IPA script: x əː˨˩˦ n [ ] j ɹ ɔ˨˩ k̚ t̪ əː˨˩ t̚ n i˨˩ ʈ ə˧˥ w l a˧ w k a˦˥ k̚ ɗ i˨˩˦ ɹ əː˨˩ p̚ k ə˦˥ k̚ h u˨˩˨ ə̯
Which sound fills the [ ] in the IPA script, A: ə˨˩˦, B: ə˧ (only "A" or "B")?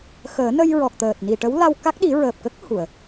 B